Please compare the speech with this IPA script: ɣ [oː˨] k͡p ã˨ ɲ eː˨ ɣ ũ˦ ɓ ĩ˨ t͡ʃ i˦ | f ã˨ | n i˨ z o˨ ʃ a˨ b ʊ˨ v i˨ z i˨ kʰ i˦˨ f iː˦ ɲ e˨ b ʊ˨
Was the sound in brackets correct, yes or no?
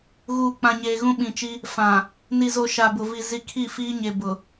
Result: no